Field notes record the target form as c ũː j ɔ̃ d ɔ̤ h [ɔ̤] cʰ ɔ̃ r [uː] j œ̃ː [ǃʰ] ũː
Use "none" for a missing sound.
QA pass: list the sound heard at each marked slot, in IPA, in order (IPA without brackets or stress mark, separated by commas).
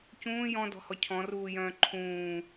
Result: ɔ, uː, ǃʰ